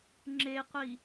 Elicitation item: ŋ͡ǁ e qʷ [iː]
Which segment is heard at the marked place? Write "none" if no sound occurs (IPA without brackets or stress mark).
i